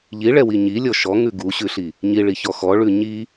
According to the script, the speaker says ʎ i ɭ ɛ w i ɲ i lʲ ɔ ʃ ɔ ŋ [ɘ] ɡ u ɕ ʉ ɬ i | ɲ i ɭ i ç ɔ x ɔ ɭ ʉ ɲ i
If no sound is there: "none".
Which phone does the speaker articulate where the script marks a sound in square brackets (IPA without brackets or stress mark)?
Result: ʉ